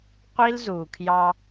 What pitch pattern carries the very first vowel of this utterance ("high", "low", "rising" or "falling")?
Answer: high